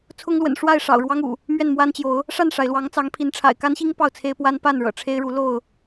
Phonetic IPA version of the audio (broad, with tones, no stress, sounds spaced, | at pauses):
t͡sʰ ʊ˦ ŋ l w ə̰˨˩ n ʂ w a˥˨ ɪ̯ ʂ ɑ̰˨˩ ʊ̯ ɻ w ɑ˦ ŋ ṵ˨˩ | m ɥ ɛ˥˨ n m w a˦ n t͡ɕ j o˨˦ ʊ̯ | ʂ a˥˨ n ʂ a˩ ɪ̯ l w ɑ˨˦ ŋ t͡s ɑ˨˦ ŋ pʰ i˨˦ n ʈ͡ʂʰ a̰˨˩ ɪ̯ k a˦ n ɕ i˦ ŋ p ɑ˥˨ ʊ̯ t͡sʰ e˦ ɪ̯ p w a˦ n p a˥˨ n ɻ ɤ̰˨˩ ʈ͡ʂʰ e˦ ɪ̯ ɻ u˨˦ l o˥˨ ʊ̯